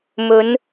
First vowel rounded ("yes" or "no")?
yes